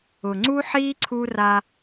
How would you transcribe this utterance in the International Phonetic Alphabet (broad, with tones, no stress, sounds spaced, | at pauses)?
ʊ˨ ŋ͡ǀ u˦ ħ iː˦ ǀʰ u˦ r a˦